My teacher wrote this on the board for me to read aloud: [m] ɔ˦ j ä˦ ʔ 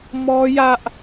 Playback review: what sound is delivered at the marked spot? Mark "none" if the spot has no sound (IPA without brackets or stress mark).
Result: m